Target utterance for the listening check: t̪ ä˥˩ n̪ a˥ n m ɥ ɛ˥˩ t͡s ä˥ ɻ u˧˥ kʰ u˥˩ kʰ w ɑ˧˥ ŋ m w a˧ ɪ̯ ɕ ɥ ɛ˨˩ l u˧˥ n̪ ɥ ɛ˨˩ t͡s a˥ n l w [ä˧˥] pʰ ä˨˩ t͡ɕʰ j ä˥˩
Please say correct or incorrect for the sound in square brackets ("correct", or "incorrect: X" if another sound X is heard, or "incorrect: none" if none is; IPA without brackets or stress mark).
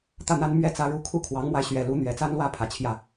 incorrect: ä˥˩